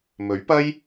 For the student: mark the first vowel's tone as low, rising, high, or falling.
rising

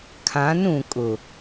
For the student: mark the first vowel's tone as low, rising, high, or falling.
rising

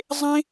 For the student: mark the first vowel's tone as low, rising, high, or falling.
high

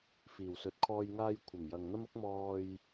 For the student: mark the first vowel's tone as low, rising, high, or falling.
low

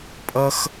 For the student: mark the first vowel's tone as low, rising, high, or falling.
high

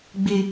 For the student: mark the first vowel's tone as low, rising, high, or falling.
high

